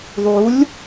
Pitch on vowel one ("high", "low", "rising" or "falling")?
rising